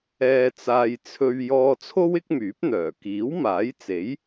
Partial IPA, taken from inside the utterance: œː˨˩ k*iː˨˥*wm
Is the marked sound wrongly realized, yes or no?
no